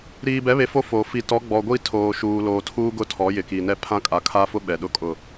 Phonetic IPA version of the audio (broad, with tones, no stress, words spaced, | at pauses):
ɾiː˨bɛ˨˦βe˨ fo˦ fo˨ fi˨ tɔ˨˦ɡ͡bɔ˨ɡʷi˦˨tʰoː˨ ʃuː˨loː˨tʰuː˦ɡʊ˦ tʰɔ˨˦jɪ˨ki˨nɛ˦ pʰã˦kʼa˨kʰa˦fʊ˦ ɓɛ˨ɗʊ˦kʼʊ˦˨